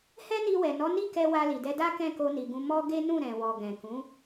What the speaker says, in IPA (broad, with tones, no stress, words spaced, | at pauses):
hɛ˦ni˧wɛ˨ nɔ˨˦ni˦˨kɛ˧ wa˧li˨dɛ˧da˦ kɛ̃˦˨ko˧ni˨ɡũ˧ mɔ˦ɡe˦ nũ˦˨ɾɛ̃˨wɔ˨ ɡɛ̃˨kũ˨˦